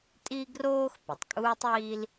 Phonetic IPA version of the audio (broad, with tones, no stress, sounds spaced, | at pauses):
tʼ i˥ ɡ r oː˥ x p ə˩ tˤ kʼ uː˥ tˤ iː˥ l